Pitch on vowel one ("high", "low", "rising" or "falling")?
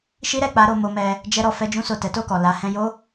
high